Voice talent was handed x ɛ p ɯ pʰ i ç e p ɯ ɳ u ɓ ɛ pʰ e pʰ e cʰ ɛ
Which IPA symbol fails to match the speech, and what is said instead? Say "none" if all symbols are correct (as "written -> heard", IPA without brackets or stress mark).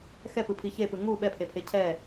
ɳ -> ŋ